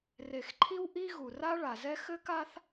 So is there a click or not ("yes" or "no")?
yes